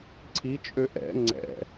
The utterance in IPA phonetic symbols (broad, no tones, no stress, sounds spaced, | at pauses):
ǀʰ i t͡ʃʼ ø ʔ ɛ̰ ŋ͡ǀ ɛ̰